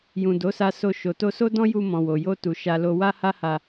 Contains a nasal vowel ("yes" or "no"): yes